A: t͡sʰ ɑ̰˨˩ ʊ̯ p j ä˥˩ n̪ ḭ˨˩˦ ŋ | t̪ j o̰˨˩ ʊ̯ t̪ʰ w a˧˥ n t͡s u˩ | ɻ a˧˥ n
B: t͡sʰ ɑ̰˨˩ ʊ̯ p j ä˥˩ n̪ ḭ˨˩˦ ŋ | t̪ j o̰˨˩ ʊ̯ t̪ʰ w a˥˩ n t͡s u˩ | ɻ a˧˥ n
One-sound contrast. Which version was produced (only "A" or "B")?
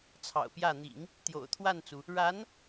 B